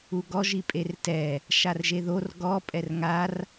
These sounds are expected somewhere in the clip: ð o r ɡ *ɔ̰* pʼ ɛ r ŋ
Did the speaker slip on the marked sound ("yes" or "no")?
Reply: yes